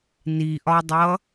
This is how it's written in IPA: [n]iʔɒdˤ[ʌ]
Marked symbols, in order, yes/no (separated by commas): yes, yes